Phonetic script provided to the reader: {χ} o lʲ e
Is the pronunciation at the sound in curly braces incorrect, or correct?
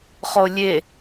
correct